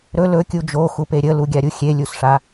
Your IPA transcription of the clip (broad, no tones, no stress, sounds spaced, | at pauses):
ɾ ɵ l ɵ kʲ u d͡ʒ o x u p e ɾʲ ə l u ɡʲ a ɾʲ u xʲ e lʲ u s ʂ a